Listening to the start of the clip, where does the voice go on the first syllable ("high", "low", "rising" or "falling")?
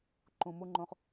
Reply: low